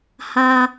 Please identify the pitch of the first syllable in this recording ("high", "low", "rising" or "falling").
high